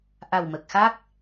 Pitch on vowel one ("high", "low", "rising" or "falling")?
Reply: low